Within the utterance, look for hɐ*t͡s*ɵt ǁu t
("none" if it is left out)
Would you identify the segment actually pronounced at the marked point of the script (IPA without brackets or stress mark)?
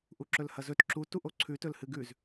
z